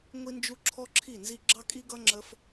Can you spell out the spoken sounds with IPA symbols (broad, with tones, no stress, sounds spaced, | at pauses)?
ŋʷ i˦ n d͡ʒ u˦ ǁʰ ɔ˦ ǁʰ i˦˨ n z i˦ ɡ͡ǁ ɑ˦ kʼ i˦ ɡ ʌ˦ ŋ͡ǁ ə˦ f